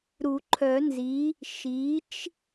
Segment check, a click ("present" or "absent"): present